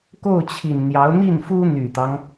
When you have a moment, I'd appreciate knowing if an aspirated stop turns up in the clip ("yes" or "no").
yes